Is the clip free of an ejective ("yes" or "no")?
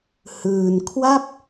yes